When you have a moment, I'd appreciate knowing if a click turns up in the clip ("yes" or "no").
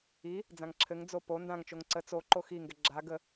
yes